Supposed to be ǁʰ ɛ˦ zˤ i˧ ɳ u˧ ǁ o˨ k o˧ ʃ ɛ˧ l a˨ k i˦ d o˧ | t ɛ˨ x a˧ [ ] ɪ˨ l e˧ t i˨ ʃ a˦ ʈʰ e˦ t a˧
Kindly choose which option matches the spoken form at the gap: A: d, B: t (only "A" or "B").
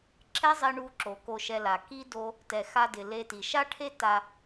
A